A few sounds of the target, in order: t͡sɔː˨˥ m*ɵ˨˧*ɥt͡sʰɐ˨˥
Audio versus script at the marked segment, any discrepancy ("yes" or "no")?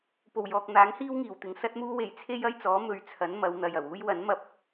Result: no